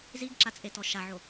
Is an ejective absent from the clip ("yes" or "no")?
no